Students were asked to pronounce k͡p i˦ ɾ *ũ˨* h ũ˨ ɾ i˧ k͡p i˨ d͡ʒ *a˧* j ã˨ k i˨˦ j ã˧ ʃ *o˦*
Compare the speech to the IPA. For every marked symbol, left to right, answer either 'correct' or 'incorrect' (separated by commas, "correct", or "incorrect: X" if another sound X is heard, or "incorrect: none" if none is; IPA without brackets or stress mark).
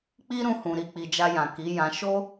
incorrect: ũ˧, correct, correct